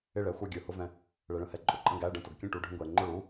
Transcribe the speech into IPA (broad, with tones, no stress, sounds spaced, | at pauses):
ɪ˧˩ ɭ ɛ˩˧˩ xʷ ə˞˧˩ ɡʲ ə˞˩ h ʊ˩˧˩ v ɛ̃˩ | ɭ ɛ˩ ɭ ə̃˩˧˩ h ɛ˩ ǃʼ ʊ˩ ǃʼ ə̃˧˩ ɡ æ˩˧˩ ɖ ə̃˧˩ t ʊ˩ ɡ kʲ ə̃˧˩ ʈ u˩˧˩ ɖʱ ə̃˧˩ ɡʷ ɛ˩ ɪ̯ ŋ͡ǃ ʊ˧˩ ɭ u˩˧˩